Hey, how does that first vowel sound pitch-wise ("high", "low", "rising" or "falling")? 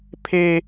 high